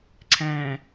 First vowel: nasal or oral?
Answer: nasal